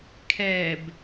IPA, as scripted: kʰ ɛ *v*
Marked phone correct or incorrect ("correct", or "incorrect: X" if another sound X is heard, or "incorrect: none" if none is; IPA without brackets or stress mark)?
incorrect: b